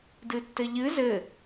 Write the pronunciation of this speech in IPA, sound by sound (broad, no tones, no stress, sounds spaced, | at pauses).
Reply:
d ɨ tː ɘ ʎ ɨ z ɘ